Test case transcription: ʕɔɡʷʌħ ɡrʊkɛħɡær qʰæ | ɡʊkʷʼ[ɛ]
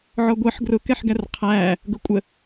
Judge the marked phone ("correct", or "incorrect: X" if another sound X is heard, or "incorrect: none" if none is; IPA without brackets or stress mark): incorrect: ə